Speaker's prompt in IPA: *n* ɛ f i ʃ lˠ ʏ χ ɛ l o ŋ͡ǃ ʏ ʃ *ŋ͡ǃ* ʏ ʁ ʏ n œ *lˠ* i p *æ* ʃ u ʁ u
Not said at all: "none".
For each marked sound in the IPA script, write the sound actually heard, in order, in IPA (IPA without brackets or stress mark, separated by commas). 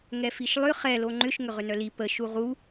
ŋ, ŋ, l, ə